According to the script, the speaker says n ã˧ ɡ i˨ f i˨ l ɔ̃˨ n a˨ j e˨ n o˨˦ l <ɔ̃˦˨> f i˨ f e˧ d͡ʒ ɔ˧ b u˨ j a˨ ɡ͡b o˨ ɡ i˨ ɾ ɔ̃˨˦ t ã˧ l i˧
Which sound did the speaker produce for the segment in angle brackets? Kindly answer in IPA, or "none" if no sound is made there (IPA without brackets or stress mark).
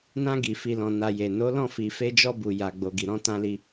ɔ̃˦˨